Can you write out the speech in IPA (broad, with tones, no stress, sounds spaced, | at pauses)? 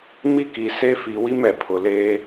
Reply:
m i˦ k i˨ s e˦ f i˨ w i˦ m ɛ˨ pʰ ʊ˨ l e˦